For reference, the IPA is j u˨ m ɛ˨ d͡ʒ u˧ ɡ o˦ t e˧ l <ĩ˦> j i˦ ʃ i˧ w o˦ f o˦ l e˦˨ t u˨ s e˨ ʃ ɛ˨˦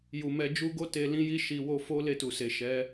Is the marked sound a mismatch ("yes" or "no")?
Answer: no